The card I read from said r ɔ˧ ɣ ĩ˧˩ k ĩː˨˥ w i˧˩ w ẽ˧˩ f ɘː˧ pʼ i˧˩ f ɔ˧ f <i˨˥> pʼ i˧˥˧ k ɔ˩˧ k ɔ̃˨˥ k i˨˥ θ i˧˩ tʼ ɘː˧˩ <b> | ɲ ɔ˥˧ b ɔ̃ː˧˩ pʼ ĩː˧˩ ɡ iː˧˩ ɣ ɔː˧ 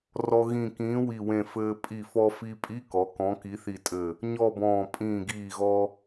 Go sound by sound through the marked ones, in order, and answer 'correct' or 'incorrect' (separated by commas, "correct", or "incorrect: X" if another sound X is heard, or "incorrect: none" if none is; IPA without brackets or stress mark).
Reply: incorrect: i˧, incorrect: none